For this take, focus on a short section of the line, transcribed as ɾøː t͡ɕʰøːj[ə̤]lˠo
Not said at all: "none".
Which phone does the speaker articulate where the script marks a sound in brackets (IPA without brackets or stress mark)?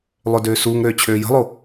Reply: ə̤